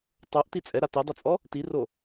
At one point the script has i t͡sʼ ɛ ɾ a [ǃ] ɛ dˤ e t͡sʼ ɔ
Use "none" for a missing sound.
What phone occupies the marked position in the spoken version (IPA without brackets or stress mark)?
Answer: t